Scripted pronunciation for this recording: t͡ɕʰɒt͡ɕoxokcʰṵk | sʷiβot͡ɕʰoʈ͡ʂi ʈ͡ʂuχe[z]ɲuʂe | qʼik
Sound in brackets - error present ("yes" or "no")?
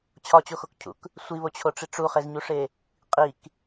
no